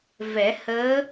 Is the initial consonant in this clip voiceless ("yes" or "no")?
no